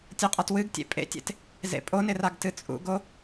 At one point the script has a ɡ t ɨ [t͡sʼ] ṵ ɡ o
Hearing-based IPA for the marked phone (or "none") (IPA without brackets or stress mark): t͡sʼ